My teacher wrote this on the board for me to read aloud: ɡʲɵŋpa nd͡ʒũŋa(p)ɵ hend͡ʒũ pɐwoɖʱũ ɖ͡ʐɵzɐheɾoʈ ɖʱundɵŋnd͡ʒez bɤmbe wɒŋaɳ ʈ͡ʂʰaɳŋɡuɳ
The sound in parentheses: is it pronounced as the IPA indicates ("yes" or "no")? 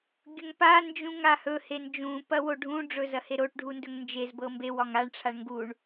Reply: no